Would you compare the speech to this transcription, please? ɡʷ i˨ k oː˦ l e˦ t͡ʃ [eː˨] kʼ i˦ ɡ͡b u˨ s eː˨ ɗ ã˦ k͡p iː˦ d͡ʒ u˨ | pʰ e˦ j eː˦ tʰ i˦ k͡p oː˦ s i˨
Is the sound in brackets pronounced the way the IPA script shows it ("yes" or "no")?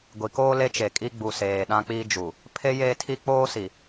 no